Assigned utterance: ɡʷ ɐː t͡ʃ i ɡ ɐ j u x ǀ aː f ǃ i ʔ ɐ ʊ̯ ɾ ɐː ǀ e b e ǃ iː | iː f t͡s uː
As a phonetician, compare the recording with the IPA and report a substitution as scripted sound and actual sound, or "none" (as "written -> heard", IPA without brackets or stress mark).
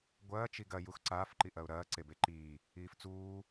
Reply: none